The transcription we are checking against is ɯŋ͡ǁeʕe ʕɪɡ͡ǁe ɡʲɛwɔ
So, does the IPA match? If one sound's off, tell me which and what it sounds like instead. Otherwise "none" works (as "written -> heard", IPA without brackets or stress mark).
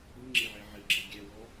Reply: none